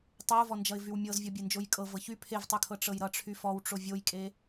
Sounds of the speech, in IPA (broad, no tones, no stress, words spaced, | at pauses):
tˤeʊ̯vɔnd͡ʒʌɪ̯ vywmʲɤzvʲɔ bʲend͡ʒojkʼɤvɤ çy pʰevtˤykʰɤ ʈ͡ʂɤjɾʌʈ͡ʂʰy fɔwʈ͡ʂo vʲojkʼe